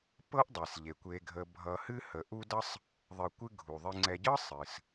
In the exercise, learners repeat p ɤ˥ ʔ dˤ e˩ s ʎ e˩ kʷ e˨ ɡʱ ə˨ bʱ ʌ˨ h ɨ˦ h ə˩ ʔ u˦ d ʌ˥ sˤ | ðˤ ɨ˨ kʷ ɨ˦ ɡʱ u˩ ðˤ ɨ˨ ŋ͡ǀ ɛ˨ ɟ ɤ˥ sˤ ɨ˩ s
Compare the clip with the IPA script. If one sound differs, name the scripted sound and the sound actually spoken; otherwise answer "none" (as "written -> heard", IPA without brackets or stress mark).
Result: none